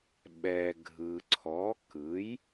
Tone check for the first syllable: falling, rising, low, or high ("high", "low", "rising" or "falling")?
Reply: low